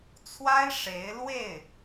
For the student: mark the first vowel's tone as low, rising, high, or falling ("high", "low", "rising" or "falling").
high